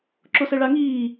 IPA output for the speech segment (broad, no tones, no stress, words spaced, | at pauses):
ǁosɛɭaŋiː